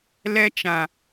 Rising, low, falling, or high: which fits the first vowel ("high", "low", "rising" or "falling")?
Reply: high